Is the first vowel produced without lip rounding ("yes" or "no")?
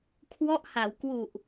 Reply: no